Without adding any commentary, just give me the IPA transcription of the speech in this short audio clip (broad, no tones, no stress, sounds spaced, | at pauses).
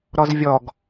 ɾ ɔ z vʲ ɔ ɡ